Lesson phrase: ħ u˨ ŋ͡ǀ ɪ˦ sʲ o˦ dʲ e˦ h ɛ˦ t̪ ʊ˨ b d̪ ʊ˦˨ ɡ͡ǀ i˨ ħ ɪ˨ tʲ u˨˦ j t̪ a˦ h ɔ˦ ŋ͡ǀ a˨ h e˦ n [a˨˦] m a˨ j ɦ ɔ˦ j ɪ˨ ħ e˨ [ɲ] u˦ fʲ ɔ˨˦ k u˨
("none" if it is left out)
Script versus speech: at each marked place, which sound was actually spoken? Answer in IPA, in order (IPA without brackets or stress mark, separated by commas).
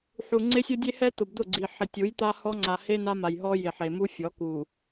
a˦, m